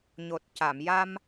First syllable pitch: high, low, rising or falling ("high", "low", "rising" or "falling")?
low